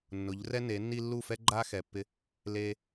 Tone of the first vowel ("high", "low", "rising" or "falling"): rising